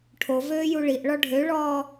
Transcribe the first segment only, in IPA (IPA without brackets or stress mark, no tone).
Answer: ʈʰ